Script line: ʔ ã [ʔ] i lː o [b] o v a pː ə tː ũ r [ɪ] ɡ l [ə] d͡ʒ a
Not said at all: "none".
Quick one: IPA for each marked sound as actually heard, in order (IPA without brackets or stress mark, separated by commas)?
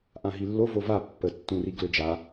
ɦ, v, i, ø